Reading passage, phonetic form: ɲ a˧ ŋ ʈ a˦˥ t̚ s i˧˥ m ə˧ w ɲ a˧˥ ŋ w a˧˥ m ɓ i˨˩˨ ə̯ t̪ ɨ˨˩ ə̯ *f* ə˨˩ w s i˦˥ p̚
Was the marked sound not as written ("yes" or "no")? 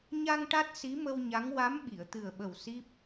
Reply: yes